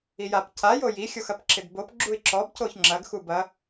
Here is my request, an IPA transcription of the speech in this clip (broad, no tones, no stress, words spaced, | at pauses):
ijap cajo jixʲoxɐp ǁɪdbop ɡ͡ǁuɪ̯ǁɔbcoç ŋ͡ǁɐɡ xubɐ